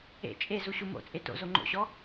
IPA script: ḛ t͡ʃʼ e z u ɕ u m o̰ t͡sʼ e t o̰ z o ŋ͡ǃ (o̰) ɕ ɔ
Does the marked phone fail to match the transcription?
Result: no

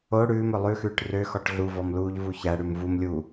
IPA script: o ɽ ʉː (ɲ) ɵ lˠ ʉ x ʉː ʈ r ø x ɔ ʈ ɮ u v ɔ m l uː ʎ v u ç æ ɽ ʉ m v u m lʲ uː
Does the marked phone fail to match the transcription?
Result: yes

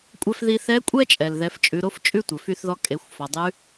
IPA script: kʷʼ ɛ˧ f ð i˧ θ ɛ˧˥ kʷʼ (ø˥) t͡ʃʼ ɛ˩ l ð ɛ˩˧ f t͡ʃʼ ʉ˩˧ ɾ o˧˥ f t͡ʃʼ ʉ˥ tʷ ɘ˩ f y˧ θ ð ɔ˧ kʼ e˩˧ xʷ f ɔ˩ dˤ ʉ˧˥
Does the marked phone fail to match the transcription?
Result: yes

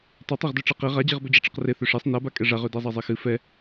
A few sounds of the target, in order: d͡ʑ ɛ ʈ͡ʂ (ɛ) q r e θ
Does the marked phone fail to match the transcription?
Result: no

